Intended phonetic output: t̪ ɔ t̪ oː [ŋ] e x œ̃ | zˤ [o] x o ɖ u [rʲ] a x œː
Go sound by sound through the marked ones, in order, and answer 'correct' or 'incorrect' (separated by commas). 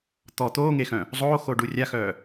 correct, incorrect, correct